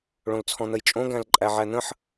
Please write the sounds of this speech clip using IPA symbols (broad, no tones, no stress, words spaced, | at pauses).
ɭõlt͡sʰɔ̃n̪əjt͡ʃʼõ ɡæ̃lǃʼæʕæn̪ə̃ħ